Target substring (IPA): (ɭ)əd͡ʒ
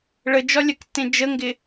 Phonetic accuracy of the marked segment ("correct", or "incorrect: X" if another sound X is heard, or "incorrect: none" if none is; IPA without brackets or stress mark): correct